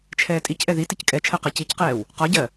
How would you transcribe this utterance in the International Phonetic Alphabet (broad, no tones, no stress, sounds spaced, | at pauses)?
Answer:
t͡ʃʰ ɛː tʼ i c ʔ ɛ ð i t i c kʼ ɛ t͡ʃʰ ɜ q ɜ c i c q ɛː w | q ɒ ɟ ɜ